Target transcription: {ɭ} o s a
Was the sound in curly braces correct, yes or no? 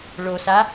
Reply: yes